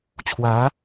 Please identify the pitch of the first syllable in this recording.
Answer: rising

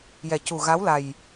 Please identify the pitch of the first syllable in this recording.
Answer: low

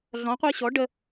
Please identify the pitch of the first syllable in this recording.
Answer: rising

